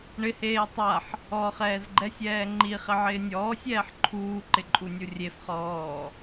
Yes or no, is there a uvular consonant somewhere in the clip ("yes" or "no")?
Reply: yes